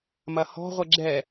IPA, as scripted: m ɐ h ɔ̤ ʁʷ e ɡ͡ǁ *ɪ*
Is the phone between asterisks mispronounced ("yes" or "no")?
yes